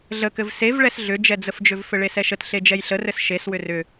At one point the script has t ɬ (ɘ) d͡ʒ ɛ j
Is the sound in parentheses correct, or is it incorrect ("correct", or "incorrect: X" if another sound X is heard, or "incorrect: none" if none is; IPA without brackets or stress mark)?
incorrect: e